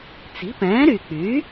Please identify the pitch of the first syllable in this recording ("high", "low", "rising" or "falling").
rising